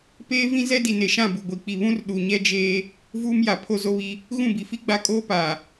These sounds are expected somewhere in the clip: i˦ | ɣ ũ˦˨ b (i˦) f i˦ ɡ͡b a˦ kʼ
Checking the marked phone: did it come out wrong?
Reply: yes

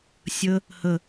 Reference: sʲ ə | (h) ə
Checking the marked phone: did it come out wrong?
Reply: no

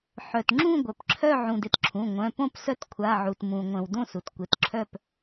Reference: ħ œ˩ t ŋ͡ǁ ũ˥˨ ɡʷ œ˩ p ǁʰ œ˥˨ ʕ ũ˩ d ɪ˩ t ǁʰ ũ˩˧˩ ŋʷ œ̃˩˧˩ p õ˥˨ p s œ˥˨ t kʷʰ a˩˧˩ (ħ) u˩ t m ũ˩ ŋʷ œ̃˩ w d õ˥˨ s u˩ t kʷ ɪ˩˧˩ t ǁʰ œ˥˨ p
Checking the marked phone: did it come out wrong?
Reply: yes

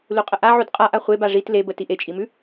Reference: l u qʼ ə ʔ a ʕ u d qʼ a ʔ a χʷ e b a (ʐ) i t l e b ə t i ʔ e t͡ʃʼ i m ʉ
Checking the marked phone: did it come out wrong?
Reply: no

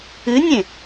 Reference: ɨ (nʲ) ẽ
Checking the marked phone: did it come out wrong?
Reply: no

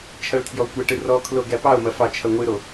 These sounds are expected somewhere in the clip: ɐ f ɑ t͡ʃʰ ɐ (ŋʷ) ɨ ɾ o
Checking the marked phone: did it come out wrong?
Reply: no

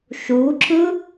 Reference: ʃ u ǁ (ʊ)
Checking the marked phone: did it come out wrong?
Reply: yes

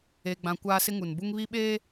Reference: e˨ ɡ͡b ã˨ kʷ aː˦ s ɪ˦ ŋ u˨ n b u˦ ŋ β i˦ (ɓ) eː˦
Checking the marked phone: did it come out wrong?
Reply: no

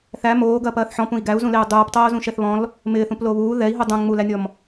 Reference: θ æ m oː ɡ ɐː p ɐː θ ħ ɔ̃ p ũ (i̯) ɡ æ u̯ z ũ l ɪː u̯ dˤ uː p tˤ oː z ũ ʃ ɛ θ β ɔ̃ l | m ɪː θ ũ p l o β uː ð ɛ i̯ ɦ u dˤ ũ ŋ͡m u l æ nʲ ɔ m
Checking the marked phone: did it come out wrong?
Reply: no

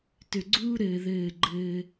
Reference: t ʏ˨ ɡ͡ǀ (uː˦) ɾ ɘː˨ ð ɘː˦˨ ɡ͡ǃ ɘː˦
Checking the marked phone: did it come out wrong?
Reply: no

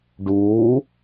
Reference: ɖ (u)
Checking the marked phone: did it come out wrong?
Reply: yes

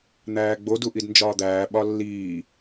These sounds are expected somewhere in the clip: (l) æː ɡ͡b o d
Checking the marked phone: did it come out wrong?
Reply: yes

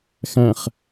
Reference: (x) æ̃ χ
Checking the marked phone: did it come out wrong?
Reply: no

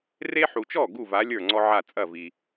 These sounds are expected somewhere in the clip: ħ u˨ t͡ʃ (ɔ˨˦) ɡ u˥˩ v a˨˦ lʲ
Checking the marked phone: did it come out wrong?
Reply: yes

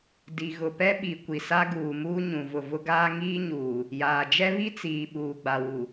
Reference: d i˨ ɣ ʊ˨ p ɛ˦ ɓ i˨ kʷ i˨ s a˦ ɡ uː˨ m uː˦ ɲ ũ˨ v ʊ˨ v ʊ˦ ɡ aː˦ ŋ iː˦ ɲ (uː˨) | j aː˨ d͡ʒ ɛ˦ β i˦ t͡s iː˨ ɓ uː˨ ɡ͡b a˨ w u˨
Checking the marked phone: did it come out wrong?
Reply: no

